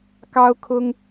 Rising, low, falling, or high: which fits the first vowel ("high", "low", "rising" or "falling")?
high